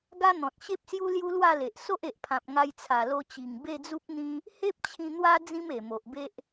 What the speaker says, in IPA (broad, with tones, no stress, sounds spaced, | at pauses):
ɡ a˦ n̪ ɔ̃˨ t̚ ɕ e˦ p̚ s j u˦ l j u˦ l w a˥˧ l e˨ ʔ s o˦ ʔ e˨ ʔ pʰ ã˨ p̚ ŋ a˧ j t͡sʰ a˨˩ l o˧ t͡ɕ i˨˩ ŋ b e˥˧ d͡z u˦ p̚ n̪ ĩ˦ | h e˦ p̚ t͡ɕʰ ĩ˧ n̪ w a˦ d͡z ĩ˦ m e˨˩ m o˨ ʔ b e˦ ʔ